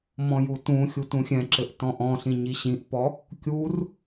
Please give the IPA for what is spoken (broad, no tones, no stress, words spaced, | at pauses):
mɔ̃jutũxʲu tũxʲɛ̃ǁɘʔ tɔ̃ʔɔ̃ɬĩ ɲiɕĩʔpɔ | kʲur